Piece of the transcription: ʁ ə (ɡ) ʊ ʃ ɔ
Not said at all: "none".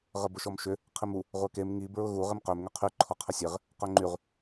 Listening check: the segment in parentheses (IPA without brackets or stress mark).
b